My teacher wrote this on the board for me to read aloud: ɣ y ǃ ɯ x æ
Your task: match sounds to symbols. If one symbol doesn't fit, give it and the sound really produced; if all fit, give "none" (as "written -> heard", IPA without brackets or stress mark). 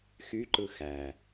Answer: ɣ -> x